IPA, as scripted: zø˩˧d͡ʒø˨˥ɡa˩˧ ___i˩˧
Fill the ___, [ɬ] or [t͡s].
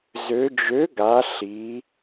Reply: ɬ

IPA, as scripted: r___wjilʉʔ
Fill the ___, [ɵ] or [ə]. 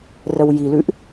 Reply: ə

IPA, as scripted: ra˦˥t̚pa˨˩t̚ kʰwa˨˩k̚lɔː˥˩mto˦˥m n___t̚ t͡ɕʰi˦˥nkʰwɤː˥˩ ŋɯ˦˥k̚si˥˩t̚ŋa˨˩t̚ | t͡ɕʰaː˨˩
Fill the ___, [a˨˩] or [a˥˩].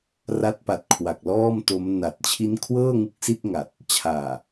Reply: a˨˩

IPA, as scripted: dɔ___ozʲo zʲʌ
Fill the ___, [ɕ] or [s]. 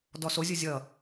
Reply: s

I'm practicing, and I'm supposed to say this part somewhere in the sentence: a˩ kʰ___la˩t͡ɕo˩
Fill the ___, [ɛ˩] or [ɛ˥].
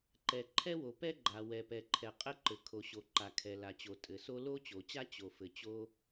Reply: ɛ˩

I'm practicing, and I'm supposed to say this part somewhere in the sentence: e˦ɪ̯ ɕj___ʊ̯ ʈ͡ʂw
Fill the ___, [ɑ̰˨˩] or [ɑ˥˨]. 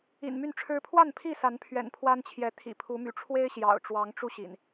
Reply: ɑ̰˨˩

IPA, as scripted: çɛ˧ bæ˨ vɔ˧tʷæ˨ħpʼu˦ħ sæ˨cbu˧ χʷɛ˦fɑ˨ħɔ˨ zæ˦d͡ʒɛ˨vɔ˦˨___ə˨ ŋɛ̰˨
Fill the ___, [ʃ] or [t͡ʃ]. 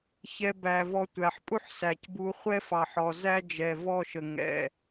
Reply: ʃ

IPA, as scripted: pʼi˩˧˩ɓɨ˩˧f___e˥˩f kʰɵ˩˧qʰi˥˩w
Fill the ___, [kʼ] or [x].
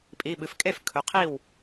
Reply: kʼ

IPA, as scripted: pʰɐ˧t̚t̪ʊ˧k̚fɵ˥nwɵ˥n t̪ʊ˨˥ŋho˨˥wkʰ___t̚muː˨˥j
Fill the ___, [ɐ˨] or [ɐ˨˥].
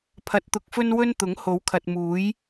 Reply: ɐ˨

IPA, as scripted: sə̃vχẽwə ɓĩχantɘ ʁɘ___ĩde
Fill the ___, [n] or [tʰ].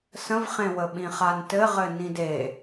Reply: n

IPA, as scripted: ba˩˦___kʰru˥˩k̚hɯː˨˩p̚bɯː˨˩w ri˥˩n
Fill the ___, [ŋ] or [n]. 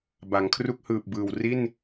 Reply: ŋ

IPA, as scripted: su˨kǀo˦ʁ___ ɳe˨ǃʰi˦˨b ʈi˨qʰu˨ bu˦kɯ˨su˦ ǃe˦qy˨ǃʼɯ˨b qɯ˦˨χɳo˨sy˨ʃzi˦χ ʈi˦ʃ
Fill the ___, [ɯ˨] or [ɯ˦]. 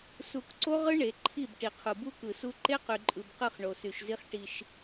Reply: ɯ˦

